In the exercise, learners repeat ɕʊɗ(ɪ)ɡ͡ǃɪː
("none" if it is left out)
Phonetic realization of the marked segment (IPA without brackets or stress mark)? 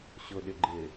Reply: ɪ